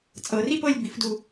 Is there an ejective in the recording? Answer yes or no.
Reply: yes